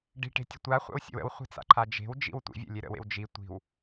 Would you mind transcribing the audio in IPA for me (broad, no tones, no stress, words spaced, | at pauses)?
ɖi̤ʈe̤tʲə tʷaχʷa̰wsʲə̰w ə̰wχʷe̤t͡sa̰ǃʰa d͡ʒe̤wd͡ʒḭw tʷḭvʲə̰lʲe ɾə̰wḛw d͡ʒi tʷi̤w